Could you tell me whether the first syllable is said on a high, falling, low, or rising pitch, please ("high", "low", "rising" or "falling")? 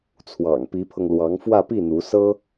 low